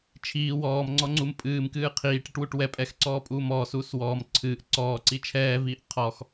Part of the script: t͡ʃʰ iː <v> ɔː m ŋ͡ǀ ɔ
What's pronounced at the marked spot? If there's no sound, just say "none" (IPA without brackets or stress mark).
w